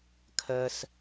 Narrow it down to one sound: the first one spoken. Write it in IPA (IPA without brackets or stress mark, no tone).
kʰ